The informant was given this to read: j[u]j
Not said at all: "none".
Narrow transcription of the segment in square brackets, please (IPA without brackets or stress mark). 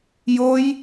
o